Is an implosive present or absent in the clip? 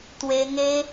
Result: absent